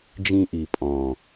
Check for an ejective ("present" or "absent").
present